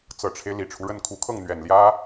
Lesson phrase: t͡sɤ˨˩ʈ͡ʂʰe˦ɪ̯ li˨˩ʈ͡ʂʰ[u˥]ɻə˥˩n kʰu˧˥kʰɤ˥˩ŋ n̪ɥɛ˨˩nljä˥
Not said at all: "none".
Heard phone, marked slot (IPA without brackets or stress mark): u˦